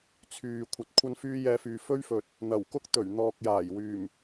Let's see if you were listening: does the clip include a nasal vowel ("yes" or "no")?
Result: no